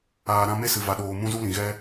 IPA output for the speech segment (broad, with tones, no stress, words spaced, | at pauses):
aː˨ɾã˧me˦ sɨ˨va˨ɗoː˨ mũ˦zu˦lĩ˨ ɣɛ˦